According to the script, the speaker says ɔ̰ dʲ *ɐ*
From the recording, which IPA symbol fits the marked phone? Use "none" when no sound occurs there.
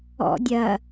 ɐ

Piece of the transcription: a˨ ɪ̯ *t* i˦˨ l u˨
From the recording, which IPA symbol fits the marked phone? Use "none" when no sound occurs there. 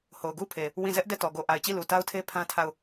t͡ɕ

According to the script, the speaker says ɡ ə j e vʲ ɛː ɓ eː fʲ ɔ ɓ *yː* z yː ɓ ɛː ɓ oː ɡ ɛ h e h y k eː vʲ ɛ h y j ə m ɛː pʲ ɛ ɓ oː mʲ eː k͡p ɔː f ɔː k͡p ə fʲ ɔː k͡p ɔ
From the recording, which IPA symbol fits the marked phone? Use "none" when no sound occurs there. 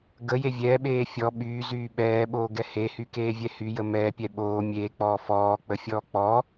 yː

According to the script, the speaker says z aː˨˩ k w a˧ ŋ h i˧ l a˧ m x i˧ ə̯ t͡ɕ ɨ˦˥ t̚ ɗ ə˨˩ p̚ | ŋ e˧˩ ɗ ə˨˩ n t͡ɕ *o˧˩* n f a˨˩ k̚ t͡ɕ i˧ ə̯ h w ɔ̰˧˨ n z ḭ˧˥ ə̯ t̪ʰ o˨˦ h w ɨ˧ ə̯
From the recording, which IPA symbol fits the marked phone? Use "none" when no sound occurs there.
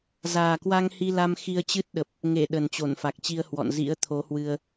o˧˩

